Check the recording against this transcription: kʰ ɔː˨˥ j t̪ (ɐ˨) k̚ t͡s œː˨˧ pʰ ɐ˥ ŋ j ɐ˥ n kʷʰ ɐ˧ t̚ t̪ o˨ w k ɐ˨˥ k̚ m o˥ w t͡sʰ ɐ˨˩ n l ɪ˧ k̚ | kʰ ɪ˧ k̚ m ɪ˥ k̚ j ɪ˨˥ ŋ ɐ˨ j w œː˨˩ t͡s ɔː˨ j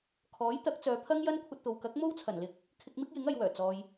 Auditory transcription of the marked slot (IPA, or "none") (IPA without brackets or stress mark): ɐ˨˥